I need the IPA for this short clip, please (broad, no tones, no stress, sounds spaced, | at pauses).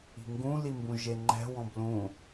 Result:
i̤ ŋ ɡ ũ l i m b ũ ʒ e ŋ͡ǃ ɛ̤ w ɔ̃ b l ũ